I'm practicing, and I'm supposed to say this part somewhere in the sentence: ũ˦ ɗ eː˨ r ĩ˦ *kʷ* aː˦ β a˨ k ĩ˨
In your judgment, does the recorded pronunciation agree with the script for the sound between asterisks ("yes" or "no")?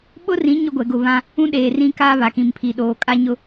no